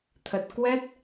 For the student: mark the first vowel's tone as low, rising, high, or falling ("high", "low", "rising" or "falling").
low